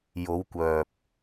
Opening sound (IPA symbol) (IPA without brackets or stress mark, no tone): j